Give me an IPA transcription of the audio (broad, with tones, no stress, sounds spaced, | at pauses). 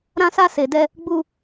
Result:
ɾ ã˧ s a˧ s e˨ d ɛ˧ | ɡ͡b u˧